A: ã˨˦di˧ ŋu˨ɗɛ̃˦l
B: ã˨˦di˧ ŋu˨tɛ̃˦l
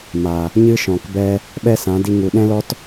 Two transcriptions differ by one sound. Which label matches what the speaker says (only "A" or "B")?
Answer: A